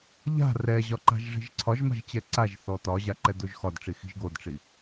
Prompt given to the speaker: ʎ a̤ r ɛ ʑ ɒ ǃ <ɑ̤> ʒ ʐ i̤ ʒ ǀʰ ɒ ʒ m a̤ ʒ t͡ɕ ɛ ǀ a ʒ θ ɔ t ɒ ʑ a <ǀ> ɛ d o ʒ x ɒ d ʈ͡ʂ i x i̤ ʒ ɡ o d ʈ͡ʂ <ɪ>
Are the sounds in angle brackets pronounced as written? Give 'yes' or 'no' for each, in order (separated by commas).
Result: no, no, no